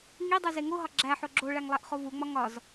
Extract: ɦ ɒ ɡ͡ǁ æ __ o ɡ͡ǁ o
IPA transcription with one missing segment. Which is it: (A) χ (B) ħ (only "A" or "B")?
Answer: B